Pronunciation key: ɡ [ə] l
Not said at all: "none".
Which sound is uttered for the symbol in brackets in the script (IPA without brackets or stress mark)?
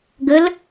ə